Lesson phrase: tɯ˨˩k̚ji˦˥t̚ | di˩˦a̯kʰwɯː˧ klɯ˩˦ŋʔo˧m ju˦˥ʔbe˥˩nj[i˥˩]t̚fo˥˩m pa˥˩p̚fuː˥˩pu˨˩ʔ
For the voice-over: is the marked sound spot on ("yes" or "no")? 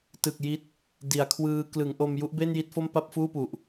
yes